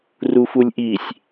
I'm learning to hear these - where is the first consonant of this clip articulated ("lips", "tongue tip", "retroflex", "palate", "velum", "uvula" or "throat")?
tongue tip